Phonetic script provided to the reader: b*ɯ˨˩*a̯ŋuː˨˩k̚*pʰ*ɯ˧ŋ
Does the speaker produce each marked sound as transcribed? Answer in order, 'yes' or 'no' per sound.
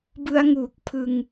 no, yes

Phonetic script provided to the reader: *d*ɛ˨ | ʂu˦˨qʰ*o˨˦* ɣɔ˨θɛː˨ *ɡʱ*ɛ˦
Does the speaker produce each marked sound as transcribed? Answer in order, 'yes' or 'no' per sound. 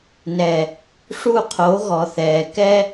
no, yes, no

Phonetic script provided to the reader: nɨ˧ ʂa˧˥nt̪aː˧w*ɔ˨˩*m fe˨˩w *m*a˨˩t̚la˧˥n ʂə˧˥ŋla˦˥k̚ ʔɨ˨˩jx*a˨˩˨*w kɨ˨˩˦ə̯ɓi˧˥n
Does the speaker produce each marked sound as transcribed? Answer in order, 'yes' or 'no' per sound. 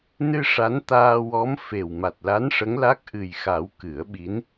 no, yes, no

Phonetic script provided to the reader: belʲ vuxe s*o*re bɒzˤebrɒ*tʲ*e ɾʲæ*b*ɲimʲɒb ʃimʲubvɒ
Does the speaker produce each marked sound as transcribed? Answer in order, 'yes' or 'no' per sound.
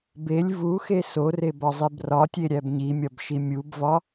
yes, yes, yes

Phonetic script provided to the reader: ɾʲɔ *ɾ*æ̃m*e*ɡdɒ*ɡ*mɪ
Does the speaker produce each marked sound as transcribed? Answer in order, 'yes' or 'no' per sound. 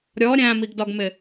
no, no, yes

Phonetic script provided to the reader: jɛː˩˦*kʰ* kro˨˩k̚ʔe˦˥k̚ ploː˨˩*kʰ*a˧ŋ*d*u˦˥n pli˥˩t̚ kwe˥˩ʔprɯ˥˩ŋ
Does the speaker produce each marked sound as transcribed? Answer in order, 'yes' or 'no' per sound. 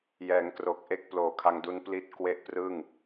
no, yes, yes

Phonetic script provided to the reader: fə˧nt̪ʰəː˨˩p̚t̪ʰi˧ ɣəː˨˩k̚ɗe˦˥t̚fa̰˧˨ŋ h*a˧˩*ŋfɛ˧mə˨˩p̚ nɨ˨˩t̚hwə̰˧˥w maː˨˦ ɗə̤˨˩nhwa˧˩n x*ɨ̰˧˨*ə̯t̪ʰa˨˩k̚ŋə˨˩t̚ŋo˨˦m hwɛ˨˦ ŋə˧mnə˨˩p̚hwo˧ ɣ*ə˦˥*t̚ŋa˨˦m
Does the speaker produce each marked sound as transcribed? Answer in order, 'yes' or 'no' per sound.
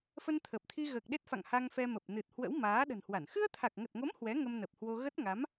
no, no, yes

